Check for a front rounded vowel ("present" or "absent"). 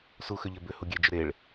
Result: present